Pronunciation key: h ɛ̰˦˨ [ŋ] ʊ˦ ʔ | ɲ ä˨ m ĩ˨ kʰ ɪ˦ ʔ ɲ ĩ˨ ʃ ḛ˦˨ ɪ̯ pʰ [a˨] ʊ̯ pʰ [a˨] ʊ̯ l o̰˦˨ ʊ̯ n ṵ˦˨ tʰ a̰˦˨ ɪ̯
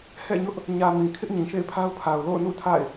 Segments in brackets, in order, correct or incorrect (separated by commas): incorrect, incorrect, correct